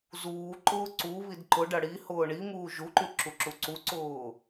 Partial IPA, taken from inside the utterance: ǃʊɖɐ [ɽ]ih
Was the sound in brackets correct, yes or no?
yes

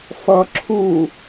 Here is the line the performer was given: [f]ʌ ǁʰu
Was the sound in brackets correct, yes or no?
yes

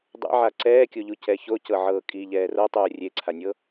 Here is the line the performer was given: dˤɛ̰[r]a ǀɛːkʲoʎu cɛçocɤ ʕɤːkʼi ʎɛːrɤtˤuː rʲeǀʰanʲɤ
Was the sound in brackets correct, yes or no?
no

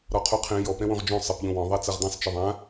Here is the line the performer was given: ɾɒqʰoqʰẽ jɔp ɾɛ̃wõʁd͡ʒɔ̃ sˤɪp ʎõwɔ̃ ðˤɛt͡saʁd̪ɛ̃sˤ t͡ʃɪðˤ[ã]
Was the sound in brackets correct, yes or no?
yes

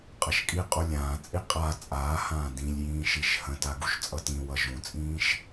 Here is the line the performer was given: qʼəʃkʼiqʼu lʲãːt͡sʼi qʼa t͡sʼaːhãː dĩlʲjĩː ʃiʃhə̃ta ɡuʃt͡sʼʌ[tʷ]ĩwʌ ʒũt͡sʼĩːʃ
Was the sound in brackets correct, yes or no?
no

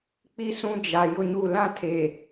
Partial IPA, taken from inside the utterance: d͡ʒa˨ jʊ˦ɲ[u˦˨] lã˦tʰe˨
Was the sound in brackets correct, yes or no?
yes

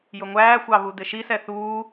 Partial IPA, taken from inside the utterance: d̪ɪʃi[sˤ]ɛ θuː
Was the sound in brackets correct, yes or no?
no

